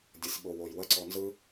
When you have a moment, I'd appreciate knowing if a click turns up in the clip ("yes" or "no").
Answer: yes